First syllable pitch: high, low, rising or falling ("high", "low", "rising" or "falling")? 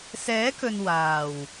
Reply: rising